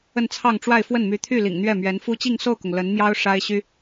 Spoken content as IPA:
ə˥˧ n t͡sʰ ɑ˥˧ ŋ ʈ͡ʂ w a˥˧ ɪ̯ f w ə˥˩ n m y˧˥ t̪ʰ y˥˩ l ḭ˨˩ ŋ n̪ ɥ ɛ˥˩ m ɥ ɛ˧˥ n f u˥ t͡ɕ i˥˧ ŋ s o˥˩ ʊ̯ k ʊ˩ ŋ l ə˧˥ n m j ɑ˥ ʊ̯ ʂ a˥ ɪ̯ ɕ y˥

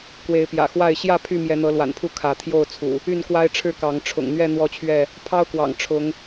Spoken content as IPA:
k w e˨˦ ɪ̯ p j ä̰˨˩ x w a˥˨ ɪ̯ ɕ j ä˥˨ pʰ y˥˨ m j ɛ˨˦ n̪ ɤ˨˦ l w a̰˨˩ n pʰ u˥˨ kʰ ä˨˦ t̪ʰ j o˥˨ ʊ̯ t͡sʰ ṵ˨˩ | y˥˨ n k w a˦ ɪ̯ ʈ͡ʂʰ ɻ̩˥˨ k ɑ˨˦ ŋ ʈ͡ʂʰ ʊ̰˨˩ ŋ n̪ ɥ ɛ˥˨ n̪ w ɔ˥˨ t͡ɕʰ ɥ ɛ˥˨ | pʰ ɑ˦ ʊ̯ k w ɑ̰˨˩ ŋ ʈ͡ʂʰ ʊ˨˦ ŋ

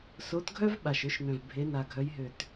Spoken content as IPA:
s o˨˦ t ɡʱ œ˦ v ɓ a˨˩ ʃ ø˦ ʃ n œ̃˨˩ v bʱ e˨˦ n a˨˩ ɡʱ œ˨˦ j ɦ ø˨˩ t

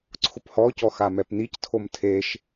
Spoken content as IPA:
ǀʰ ʊ p h ɔ c ɔ x a m ɛ p n̪ i c tʰ o m tʰ e ʃ

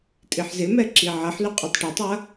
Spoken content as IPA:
tʼ i ħ z ɪ m ɛ ǁ i ʕ ɐ ħ l y qʼ y tˤ ʈ ɐ tˤ ɐ

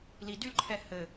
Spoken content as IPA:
l i d y l ǃʰ ɛ h ɘ

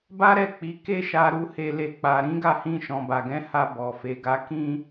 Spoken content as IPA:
b a˦ ɾ ɛ˦˨ k͡p i˨˦ k e˦ ʃ a˧ ɾ u˧ h e˨ l e˨ k͡p a˨ ɾ ĩ˨˦ ɡ a˦˨ h ĩ˧ ʃ ɔ̃˨ b a˨ ɡ ɛ̃˨˦ h a˧ b ɔ˨ f e˨˦ ɡ a˧ k ĩ˦

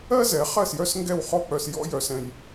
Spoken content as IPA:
ɜ˥ z ɛ˩˥ χ ɜ˥˩ s j œ˥ s ŋ ɡ ɛ˥˩ w χ ɔ˥ k͡p œ˧ s j ɔ̰˥ j œ˧ s ɛ̃˧ j

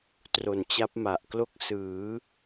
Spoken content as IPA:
t r o˨˩ n t͡ɕ a˦˥ p̚ m a˨˩ ʔ k l o˥˩ k̚ s ɯː˩˦

